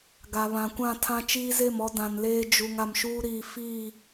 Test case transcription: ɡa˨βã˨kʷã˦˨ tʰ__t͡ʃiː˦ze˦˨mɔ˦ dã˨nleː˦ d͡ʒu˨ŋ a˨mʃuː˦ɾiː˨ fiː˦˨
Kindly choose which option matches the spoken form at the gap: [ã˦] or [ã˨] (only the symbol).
ã˦